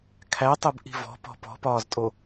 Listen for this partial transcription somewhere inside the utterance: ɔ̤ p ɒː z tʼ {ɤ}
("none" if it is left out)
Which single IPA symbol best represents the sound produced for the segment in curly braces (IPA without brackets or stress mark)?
o